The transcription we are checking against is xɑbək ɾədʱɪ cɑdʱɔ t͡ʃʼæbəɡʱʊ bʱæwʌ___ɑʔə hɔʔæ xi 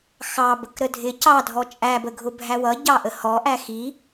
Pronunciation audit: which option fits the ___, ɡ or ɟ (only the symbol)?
ɟ